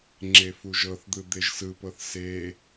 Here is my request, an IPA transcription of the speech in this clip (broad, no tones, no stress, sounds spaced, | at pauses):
ŋ͡ǁ e f u ʒ ɤ θ d̪ ɯ d̪ e ʒ s ɯ p ɤ θ s e